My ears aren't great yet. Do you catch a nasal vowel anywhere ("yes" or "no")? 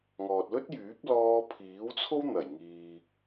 no